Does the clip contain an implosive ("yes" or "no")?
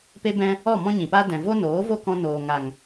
no